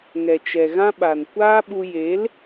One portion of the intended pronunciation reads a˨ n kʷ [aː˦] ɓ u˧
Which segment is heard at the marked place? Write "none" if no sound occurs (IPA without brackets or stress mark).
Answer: aː˦